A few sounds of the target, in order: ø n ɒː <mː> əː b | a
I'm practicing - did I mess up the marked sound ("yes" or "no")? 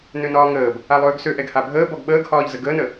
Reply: yes